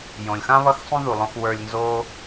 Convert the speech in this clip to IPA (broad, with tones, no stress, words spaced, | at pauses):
jõ˨lʲxã˦ βʌ˦xsˤũ˦ðu˨lˠõ˧x wə˞˧lʲnzo˦